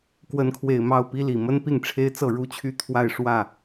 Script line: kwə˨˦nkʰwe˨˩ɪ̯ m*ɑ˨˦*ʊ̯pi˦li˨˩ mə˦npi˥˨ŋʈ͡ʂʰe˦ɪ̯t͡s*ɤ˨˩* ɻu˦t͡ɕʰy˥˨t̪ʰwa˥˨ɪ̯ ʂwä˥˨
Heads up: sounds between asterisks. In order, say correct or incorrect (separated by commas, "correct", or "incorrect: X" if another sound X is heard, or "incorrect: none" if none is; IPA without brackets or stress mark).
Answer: incorrect: ɑ˥˨, incorrect: ɤ˥˨